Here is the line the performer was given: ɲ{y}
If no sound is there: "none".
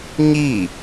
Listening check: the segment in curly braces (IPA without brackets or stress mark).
i